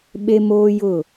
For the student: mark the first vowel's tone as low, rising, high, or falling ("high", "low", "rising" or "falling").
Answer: high